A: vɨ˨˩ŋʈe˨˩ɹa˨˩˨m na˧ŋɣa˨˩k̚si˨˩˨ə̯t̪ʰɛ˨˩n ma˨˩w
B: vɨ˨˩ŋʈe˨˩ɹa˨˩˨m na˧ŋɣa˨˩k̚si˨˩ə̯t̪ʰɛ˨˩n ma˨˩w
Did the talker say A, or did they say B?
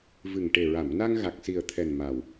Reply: B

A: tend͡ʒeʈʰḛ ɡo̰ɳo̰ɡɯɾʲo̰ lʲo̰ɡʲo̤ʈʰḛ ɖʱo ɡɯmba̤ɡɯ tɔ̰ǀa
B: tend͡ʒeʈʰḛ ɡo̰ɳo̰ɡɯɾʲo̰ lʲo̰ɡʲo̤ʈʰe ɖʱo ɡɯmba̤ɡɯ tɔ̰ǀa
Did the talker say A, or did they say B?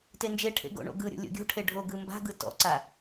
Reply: B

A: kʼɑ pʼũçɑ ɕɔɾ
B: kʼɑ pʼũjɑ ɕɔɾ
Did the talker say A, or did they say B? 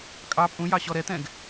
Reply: B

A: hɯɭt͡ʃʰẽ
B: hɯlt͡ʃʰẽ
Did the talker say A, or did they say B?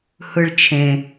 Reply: A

